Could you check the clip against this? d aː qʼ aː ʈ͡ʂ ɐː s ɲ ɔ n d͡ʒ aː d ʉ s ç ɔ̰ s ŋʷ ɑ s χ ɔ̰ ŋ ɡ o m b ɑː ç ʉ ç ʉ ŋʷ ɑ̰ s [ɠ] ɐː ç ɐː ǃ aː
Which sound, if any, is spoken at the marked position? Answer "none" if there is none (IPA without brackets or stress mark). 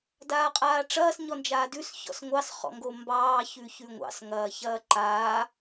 ŋ